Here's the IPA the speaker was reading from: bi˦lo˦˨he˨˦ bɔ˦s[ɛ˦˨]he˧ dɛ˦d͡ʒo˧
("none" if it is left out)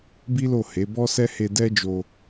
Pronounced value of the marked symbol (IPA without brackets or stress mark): ɛ˦